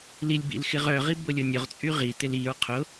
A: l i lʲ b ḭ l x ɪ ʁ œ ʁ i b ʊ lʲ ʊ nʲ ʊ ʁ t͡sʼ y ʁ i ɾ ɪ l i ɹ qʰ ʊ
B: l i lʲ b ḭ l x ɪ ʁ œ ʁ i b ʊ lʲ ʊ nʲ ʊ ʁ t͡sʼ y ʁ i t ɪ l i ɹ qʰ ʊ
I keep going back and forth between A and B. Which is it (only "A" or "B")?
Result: B